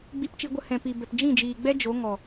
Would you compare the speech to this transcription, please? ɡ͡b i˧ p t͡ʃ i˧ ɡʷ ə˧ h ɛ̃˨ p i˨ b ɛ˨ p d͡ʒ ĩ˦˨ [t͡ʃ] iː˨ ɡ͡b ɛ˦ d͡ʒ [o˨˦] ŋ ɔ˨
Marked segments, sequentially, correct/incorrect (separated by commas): incorrect, correct